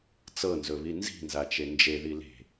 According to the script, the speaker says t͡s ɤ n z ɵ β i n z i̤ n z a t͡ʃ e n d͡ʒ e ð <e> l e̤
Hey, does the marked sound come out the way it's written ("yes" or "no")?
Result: no